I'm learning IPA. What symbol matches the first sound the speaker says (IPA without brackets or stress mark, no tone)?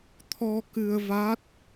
t̪ʰ